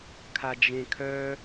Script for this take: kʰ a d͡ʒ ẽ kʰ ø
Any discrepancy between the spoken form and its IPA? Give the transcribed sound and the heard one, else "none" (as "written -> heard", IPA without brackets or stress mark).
ø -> œ